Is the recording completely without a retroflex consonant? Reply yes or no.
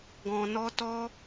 yes